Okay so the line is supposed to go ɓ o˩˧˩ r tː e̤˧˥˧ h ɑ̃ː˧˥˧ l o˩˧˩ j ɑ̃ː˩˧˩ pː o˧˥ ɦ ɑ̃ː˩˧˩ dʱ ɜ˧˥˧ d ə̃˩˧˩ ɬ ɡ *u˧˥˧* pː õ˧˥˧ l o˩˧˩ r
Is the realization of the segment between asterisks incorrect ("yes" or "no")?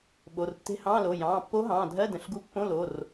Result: no